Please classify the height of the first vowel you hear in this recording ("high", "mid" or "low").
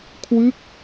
high